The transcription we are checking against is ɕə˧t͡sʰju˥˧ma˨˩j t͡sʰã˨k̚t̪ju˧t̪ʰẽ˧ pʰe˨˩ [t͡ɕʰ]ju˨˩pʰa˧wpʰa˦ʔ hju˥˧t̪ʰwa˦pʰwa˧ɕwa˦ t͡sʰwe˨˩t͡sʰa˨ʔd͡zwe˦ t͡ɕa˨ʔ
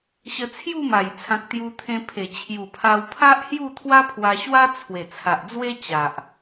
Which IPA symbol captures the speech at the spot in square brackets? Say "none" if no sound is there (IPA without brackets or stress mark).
t͡ɕʰ